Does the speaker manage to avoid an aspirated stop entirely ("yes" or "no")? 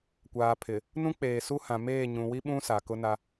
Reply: no